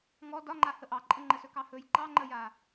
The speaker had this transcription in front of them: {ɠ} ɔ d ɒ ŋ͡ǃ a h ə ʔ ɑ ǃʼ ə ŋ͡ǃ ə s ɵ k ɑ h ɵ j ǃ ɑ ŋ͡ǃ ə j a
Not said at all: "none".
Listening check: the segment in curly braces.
ŋ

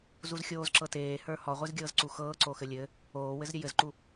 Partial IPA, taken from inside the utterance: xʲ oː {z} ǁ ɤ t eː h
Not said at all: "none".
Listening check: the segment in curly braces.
z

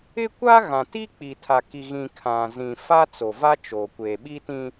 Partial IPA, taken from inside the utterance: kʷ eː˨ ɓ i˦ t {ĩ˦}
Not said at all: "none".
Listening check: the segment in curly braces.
ĩ˦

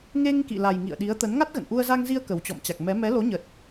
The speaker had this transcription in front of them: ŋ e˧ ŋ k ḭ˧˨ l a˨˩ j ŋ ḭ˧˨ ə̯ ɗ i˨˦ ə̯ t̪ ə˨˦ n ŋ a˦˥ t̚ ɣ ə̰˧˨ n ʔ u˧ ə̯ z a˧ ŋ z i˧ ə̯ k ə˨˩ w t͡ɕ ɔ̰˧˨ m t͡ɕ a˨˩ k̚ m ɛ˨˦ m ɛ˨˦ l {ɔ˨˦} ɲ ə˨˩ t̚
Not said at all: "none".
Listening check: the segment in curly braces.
o˨˦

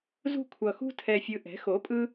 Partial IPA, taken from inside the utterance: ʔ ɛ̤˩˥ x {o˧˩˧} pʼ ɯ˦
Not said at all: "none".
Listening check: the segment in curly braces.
o˩˥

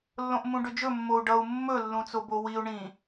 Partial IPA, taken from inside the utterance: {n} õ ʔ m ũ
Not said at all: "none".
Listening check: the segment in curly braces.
lː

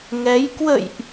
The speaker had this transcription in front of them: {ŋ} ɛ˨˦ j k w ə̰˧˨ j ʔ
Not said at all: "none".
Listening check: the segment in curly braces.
ŋ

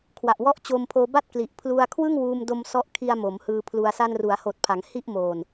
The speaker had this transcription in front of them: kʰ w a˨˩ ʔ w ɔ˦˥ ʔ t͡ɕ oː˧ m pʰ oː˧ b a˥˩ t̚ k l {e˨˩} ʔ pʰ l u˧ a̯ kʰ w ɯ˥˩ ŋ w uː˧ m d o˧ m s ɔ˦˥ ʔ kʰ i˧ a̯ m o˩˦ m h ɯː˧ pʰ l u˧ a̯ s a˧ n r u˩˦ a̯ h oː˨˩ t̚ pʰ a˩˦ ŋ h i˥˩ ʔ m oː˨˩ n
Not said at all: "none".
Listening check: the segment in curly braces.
i˨˩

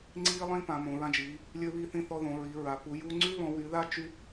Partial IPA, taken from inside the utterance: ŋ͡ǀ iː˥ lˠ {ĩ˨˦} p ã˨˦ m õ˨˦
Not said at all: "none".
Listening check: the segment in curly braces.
ĩ˥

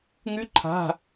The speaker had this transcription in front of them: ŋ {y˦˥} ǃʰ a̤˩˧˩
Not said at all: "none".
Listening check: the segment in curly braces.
y˦˥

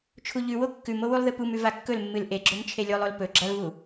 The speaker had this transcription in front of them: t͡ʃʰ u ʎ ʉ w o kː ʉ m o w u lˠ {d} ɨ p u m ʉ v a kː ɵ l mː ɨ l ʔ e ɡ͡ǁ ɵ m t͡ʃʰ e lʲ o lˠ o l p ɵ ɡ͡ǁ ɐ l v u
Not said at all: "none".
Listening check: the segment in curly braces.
ð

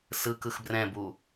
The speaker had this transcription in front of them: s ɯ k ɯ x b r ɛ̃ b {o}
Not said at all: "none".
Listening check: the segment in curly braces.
u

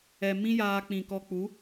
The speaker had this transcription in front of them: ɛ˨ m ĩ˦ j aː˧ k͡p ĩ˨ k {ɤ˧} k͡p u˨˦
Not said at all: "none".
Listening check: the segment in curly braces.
ɔ˧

